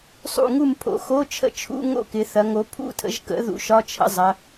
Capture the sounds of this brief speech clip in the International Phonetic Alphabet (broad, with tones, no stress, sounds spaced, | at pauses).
sˤ ṵ˥˨ ŋ u˥˨ m pʰ o̰˨˦ x o˧˥˧ t͡ʃʰ ə̰˥˨ t͡ʃʰ ṵ˧˥˧ ŋ o̰˥˨ k ɪ˨˦ θ ɐ˨˦ ŋ o˨˦ pʰ ṵ˥˨ tʰ ə̰˨˦ ʒ k ə̰˨˦ ð ṵ˨˦ ʃ ɒ˧˥˧ t͡ʃʰ ə̰˥˨ zˤ ɐ˨˦